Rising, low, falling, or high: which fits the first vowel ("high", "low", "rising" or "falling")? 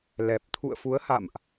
low